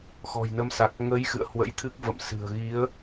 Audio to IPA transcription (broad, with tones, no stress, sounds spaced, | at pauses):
x ɔ̤˨˩ j n ə˨˦ m s a˨˩ k̚ ŋ ə˨˦ j x ɨ̰˧˨ ə̯ h w ə̰˧˥ j t̪ʰ ɨ˦˥ k̚ v ə̰˧˨ m s ɨ̤˨˩ ə̯ ɣ i˨˦ ə̯